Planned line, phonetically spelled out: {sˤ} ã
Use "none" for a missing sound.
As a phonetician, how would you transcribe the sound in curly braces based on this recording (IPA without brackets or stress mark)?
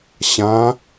ɕ